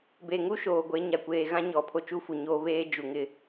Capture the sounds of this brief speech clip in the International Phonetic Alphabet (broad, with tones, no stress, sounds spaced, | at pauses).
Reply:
b e˨ ŋ u˦ ʃ oː˨ ɡʷ e˨˦ ɲ a˨ kʷ eː˨ ɣ ã˦ ɲ ɔ˨ pʰ o˦ t͡ʃ u˦ f u˨ ɲ oː˦ β eː˦ d͡ʒ u˨ ŋ ɪ˦